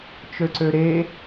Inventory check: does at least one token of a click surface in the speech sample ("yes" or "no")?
yes